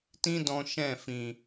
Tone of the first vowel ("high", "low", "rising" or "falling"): high